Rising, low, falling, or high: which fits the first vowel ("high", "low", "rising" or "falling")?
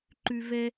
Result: high